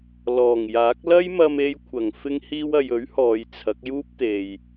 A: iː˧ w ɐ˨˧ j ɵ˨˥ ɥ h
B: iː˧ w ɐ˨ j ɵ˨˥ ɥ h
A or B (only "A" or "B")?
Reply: B